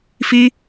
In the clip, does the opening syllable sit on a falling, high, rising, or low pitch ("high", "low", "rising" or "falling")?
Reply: high